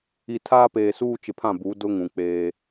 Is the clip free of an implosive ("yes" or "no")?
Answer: yes